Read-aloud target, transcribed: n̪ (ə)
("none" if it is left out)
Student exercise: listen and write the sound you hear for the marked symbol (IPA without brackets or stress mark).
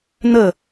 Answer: ə